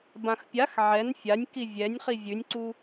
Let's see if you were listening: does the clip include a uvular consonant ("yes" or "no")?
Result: yes